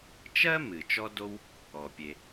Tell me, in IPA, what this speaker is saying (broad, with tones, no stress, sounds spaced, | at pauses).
t͡ʃ ɜ˥ m ɨ˩ t͡ʃ ɔ˥ d o˥ w | ɔ˩ pʲ e˨